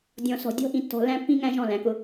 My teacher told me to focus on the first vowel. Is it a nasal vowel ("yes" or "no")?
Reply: yes